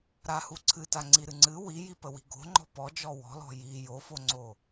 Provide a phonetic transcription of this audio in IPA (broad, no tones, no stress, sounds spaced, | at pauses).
ɾ a h u ǀʰ ɨ t a ŋ͡ǀ i ɾ ɨ ŋ͡ǀ ɨ w i j i p ə w i̤ ɡ o̤ ŋ͡ǃ ɔ̤ p ɔ d͡ʒ ɔ w ɔ̤ l ɔ̤ j i j o f o ŋ͡ǀ o